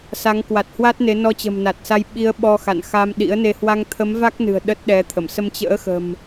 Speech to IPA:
sa˨˦ŋ kwa˨˩t̚hwa˦˥t̚ ne˨˦ nɔ˧t͡ɕə̤˨˩mna˨˩t̚sa˧j ɓi˨˦ə̯ ɓɔ˧xa̰˧˨n xa˧mɗḭ˧˥ə̯ne˧ hwa˧ŋt̪ʰə˨˦m va˦˥k̚nɨ̤˨˩ə̯ ɗə˦˥t̚ɗɛ˨˦t̪ʰə˧˩m sə˧mt͡ɕə̰ː˧˥xə̤˨˩m

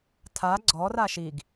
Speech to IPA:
tʰa ɡ͡ǀɔr aʃiɡ

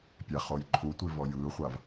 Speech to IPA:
pʲæχoj ǃʰutʷi vɔjɯːχʷav

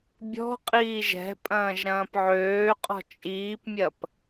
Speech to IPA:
bʲɔ̤ qʼiːʒɛ̤ pʼɐ̃ːʒɾɐ̃ːpʕøːqʼɔ̤ t͡ʃʼiːpmʲɐp

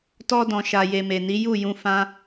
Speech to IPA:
tɔ˧dɔ̃˨ ʃa˨je˨me˨ni˨˦ ju˦˨jũ˧fã˦

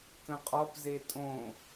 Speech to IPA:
kə̃qʼɒp zetʼõ

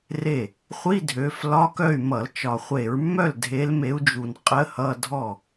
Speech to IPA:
re˥˩ | χʷi˧˥˧ dʱø˨˦f lɒ˧˥˧kœ˥˩y̯mʌ˧˩˧l t͡ʃɒ˨˩χʷe˧˩˧ɹmːœ˥˩l dʱe˨˦lme˨˦u̯d͡ʒu˨˩n qʼə˧˥˧hʌ˧˥˧dʱɔ˥˩

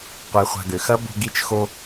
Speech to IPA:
qʷe˧χʷa̤˧ɡø˨ xɐ˦ bo̤˧ɡi˧t͡ʃxo˧

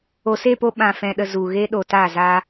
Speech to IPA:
o˨se˦˨po˧ ɓã˨fɛ̃˨ɗə˨ zu˨ɣe˦ ɗo˨ta˦˨za˦

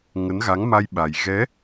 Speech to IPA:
ŋə˨˦nɣa˨˦ŋma˧j ɓa˨˩j ɣɛ˨˦

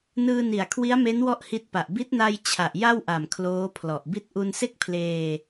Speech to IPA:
nɯː˧ni˨˩a̯kʰwi˦˥a̯me˦˥n wɔ˥˩ʔhi˦˥t̚pa˨˩ʔ bi˦˥t̚na˧j t͡ɕʰa˨˩ʔja˥˩wʔa˨˩m kʰloː˦˥pʰlɔ˨˩ʔbi˥˩t̚ ʔu˧nse˥˩k̚pʰleː˧

